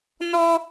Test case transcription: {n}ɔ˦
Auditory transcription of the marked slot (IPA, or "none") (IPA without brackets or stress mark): n